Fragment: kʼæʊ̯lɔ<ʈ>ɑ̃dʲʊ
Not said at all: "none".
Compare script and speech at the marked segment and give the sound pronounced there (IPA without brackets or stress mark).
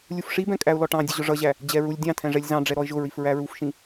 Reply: ʈ